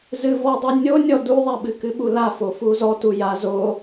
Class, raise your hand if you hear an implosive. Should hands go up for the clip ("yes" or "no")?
yes